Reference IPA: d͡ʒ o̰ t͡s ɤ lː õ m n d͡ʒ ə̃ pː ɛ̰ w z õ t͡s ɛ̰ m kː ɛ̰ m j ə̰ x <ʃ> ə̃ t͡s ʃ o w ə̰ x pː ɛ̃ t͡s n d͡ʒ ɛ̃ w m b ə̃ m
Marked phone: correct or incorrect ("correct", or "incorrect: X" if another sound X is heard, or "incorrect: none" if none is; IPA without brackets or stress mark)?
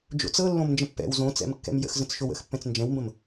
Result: incorrect: z